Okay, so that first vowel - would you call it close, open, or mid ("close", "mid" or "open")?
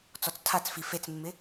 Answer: mid